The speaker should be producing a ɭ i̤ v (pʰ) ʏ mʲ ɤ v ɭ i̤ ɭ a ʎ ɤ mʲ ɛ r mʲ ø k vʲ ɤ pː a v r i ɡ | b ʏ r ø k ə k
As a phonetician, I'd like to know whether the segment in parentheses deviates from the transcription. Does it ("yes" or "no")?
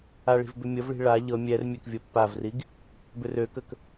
yes